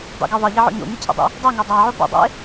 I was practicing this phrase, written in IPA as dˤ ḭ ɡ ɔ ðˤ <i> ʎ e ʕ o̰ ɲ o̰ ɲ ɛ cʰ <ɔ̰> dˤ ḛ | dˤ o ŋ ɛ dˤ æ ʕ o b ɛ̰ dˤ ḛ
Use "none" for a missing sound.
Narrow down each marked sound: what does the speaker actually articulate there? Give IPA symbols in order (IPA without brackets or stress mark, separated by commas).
e, o̰